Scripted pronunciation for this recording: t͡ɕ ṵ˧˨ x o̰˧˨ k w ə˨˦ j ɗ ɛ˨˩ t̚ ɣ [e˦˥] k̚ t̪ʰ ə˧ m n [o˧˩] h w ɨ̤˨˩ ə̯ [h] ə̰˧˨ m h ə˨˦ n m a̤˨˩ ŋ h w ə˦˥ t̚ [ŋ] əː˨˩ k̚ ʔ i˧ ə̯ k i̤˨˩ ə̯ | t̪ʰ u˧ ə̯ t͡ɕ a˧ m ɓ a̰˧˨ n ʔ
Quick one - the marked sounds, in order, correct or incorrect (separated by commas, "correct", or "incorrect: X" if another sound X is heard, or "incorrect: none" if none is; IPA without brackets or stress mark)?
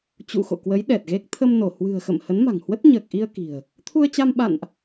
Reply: correct, correct, incorrect: x, incorrect: ɲ